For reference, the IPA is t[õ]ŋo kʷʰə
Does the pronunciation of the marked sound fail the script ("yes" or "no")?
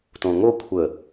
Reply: no